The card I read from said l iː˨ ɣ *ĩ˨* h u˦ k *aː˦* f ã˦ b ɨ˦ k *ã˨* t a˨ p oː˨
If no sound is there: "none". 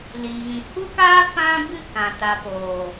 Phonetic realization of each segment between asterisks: ĩ˨, aː˦, ã˨

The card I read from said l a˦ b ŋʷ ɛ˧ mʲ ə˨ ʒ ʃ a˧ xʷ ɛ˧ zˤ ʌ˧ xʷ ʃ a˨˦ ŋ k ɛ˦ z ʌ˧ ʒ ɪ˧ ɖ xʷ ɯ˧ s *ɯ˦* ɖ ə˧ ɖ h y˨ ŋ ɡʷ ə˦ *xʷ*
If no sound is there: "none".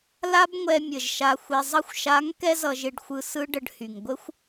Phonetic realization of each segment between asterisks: ɯ˦, xʷ

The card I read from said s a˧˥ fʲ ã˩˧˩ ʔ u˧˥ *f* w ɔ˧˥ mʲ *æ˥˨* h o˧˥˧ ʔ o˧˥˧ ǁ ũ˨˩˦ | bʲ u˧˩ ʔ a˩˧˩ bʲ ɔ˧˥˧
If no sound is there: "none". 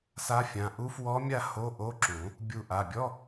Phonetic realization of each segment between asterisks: f, a˥˨

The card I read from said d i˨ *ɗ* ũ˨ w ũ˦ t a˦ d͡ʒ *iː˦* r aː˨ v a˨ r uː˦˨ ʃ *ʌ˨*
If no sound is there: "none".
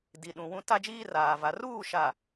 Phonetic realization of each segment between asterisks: ɗ, iː˦, a˨

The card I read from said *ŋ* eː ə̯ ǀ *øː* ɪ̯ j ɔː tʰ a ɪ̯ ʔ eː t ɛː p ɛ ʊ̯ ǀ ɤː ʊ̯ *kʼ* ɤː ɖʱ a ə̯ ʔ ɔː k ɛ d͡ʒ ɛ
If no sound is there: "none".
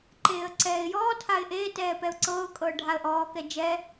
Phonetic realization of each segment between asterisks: ǃ, ɛː, kʼ

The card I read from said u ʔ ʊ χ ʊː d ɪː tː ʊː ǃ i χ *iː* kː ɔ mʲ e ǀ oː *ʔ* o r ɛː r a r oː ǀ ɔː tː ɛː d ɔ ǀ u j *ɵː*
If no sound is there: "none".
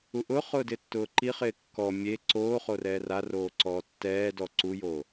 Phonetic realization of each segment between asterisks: ɪː, χ, oː

